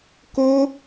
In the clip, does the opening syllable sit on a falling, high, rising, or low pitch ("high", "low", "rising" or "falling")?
high